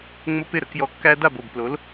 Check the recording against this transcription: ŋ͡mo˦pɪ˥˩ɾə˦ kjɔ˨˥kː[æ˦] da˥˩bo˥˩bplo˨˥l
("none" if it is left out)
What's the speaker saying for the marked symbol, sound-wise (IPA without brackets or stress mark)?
æ˦